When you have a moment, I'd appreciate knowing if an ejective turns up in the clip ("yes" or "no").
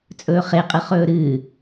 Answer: yes